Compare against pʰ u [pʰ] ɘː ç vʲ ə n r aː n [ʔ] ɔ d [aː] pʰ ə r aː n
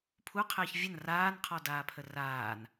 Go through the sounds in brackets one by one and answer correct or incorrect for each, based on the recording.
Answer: incorrect, incorrect, correct

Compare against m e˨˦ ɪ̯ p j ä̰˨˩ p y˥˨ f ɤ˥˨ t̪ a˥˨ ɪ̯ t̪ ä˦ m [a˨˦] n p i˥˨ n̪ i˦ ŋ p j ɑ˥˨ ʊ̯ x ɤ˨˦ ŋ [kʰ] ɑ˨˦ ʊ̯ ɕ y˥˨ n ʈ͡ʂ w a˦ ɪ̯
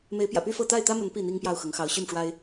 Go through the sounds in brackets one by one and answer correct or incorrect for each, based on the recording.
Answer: incorrect, incorrect

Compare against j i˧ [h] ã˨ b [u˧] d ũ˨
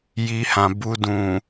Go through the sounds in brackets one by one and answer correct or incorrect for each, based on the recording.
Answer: correct, correct

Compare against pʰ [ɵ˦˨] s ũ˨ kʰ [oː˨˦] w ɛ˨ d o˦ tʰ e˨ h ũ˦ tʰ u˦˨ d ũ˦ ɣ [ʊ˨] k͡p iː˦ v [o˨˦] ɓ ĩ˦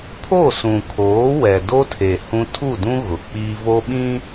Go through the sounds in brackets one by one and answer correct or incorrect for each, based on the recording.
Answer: incorrect, correct, correct, incorrect

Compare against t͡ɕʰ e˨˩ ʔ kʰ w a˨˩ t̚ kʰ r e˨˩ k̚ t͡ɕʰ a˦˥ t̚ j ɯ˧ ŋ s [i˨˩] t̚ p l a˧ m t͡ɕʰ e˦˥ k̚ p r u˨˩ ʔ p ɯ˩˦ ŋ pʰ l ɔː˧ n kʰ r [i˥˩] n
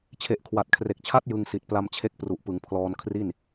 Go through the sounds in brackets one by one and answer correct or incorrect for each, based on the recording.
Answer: correct, correct

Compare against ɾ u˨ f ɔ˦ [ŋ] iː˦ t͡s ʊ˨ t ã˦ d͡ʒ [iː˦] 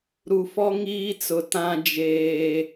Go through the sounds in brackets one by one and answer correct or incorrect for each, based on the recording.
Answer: correct, incorrect

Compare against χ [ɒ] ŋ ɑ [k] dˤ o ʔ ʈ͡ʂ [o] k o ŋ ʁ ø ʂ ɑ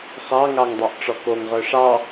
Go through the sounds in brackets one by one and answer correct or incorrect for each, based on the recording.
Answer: incorrect, incorrect, incorrect

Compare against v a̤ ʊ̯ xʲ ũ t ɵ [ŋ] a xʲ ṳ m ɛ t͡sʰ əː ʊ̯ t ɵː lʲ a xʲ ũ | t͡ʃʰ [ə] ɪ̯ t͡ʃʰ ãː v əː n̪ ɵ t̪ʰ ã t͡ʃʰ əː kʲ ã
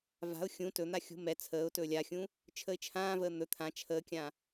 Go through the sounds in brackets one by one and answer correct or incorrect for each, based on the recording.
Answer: incorrect, correct

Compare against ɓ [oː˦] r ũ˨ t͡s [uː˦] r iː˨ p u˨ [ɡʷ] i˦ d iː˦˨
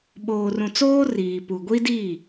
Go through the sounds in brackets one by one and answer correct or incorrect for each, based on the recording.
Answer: incorrect, incorrect, correct

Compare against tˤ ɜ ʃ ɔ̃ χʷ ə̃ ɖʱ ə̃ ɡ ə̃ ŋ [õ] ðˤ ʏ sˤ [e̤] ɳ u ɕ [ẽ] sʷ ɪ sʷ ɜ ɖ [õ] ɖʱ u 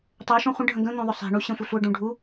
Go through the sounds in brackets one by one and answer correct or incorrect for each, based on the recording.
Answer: correct, correct, correct, incorrect

